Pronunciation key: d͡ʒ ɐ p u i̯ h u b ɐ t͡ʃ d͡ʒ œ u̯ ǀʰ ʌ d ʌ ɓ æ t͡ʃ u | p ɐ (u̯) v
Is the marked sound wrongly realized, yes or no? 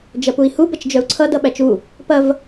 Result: yes